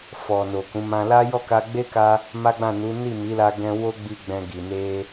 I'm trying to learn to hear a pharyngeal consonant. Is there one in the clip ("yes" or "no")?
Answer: no